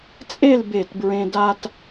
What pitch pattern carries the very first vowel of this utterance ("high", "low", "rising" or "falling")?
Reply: falling